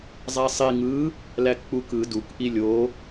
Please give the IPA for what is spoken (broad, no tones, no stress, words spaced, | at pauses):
zˤæsˤi ŋɯ | lækk͡pukɯ duk ʔilʲo